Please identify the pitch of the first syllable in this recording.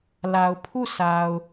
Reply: low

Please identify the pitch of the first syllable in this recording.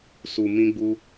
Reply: low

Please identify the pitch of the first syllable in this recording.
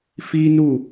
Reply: high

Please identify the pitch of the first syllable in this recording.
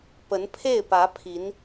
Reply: rising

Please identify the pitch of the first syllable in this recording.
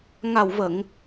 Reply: low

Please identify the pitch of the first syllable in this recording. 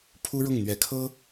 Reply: high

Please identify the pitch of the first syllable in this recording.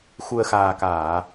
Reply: low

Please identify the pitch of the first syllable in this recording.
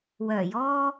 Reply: low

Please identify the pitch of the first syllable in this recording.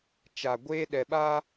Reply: low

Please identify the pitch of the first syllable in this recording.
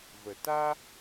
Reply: low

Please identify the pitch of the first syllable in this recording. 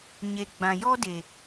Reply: low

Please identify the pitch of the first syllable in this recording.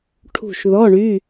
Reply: falling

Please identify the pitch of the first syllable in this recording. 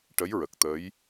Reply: rising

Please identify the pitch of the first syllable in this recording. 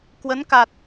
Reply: rising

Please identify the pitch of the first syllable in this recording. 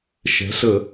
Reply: rising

